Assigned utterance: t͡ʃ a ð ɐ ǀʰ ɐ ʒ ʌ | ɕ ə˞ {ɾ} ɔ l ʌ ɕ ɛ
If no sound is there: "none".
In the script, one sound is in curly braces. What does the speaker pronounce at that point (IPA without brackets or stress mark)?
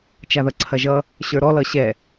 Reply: ɾ